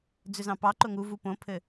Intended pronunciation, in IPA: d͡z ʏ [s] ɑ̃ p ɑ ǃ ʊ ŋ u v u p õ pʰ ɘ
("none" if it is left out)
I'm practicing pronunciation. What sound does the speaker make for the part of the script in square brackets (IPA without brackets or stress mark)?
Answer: z